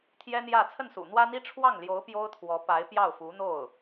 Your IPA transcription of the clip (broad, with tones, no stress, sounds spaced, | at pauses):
t̪ʰ j ɛ˥ n̪ j ä˥˧ t͡sʰ ə˥˩ n s ṵ˨˩ n̪ w ä˥ n̪ i˥ ʈ͡ʂʰ w ɑ˥˩ ŋ l j o˧˥ ʊ̯ p j o˥ ʊ̯ t̪ʰ w ɔ˧˥ p a˧˥ ɪ̯ p j ɑ˥˩ ʊ̯ f u˧˥ n̪ o˥˩ ʊ̯